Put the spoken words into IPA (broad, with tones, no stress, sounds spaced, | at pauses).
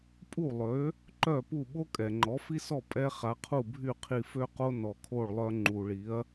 pʼ u˥˩ lˠ ø˩˥ | ǃ œ˥˩ p u˥˩ ɓ o˥ kʼ ɛ˩ ŋ͡ǃ ɔ˩˥ f i˥ s ɔ˥˩ pʼ ɛ˧ χ a˩˥ qʰ u˥˩ bʱ y˥˩ qʰ i˧ f ø˥ q o˥ n ɔ˩ kʰ o˥˩ ɭ lˠ œ˧ ŋ͡ǃ u˩ ɭ i˩˥ ɐ̯